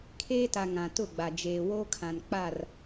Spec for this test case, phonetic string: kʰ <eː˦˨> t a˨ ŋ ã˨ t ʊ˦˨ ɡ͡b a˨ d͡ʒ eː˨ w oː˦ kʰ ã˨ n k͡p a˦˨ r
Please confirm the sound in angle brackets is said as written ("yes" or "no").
no